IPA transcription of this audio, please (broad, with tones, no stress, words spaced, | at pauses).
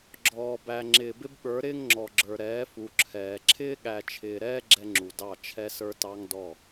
ɡ͡ǁɔː˨bæ˨ ŋ͡ǁɪː˨bɪ˦bɓə˞˨˦ɾɪː˦ŋ ŋ͡ǁɔ˨ɡ͡ǁə˞˨ ɾɛː˨˦fu˨ ǁʰɛː˨ ǁʰɪː˦ɠæ˨t͡ʃʰɪː˨ɾɛː˦ ɡ͡ǁɛ˦ŋ͡ǁu˨dɑ˦˨ t͡ʃʰɛ˦sə˞˦tɑ˦ŋdɔ˦˨